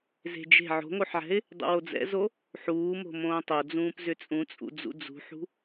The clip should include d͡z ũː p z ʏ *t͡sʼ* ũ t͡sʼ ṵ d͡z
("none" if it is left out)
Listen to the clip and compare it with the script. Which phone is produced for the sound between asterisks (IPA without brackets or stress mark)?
t͡sʼ